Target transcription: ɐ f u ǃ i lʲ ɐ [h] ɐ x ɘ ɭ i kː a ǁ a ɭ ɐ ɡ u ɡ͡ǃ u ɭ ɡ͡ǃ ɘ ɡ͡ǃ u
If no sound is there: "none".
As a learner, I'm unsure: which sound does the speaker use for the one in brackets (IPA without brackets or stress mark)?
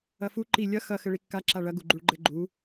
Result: x